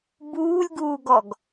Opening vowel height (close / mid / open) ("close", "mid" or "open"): close